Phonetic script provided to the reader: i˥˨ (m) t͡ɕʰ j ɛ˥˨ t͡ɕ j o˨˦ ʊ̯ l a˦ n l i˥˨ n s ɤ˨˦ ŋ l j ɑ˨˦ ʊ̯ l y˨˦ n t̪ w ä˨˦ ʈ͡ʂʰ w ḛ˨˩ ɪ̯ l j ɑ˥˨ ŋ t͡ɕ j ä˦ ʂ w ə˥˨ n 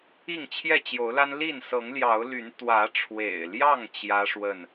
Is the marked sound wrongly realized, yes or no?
yes